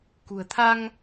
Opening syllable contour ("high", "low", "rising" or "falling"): low